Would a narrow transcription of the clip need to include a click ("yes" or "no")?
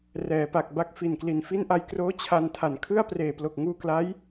no